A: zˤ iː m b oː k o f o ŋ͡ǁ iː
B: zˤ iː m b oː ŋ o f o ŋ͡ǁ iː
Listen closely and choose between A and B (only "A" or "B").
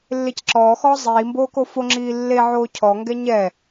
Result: A